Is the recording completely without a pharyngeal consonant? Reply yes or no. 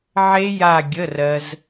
no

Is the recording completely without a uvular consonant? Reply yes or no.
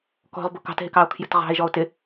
no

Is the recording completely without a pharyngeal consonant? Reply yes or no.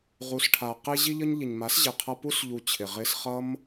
yes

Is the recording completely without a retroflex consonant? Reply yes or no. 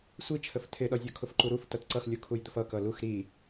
yes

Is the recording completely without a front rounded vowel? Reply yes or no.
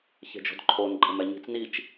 yes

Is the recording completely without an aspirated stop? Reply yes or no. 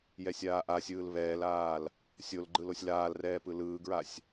yes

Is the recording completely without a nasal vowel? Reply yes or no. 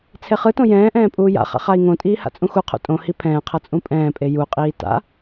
no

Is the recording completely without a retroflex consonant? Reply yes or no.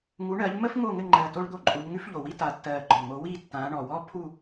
no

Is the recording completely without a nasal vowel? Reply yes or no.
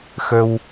yes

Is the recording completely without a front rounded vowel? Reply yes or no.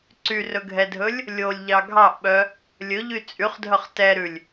no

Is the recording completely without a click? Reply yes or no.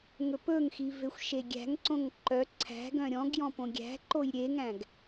no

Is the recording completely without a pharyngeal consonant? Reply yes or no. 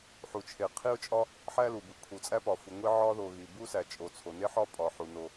no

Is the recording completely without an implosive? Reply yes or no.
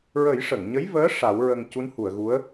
yes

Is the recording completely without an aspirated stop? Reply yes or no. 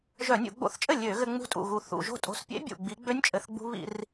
yes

